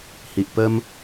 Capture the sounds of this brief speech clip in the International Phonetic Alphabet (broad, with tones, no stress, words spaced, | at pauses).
hi˨ʔpə˧m